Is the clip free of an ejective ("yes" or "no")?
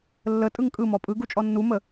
no